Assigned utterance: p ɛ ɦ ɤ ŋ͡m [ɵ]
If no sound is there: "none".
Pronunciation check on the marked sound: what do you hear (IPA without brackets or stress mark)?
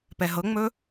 ɵ